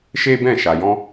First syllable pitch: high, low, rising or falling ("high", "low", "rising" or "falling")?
high